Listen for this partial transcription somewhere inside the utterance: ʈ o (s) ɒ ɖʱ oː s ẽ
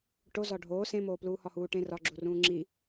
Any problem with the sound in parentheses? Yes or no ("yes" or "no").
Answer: yes